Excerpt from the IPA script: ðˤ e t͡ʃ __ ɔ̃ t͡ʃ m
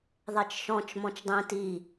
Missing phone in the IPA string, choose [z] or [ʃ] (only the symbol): ʃ